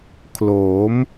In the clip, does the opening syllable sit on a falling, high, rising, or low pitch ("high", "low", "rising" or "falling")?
rising